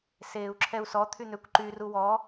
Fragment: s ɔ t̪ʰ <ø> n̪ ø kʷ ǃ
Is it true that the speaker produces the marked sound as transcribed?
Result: no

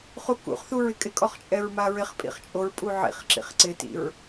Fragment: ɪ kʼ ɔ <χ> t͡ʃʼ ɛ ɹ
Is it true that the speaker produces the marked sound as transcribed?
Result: yes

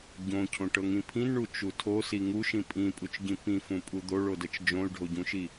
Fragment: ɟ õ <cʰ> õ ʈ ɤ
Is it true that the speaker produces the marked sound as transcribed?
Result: yes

